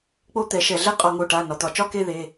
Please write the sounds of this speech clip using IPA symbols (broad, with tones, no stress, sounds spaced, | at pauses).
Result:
k͡p o˥˧ t̪ ɛ˧˩˧ ʃ ɛ˧˩˧ ɮ ɛ˥˧ qʼ ɒ˧˩˧ ŋ o˩˧˩ ʈ a˩˧˩ n ɒ˩˧˩ t̪ ɒ˧˩˧ t͡ʃ ɒ˥˧ k e˥˧ ð e˩˧˩